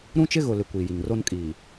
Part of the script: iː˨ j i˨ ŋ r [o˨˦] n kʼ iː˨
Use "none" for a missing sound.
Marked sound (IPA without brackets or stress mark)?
o˦